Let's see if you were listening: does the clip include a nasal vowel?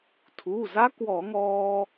no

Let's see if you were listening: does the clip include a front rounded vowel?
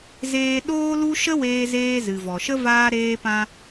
no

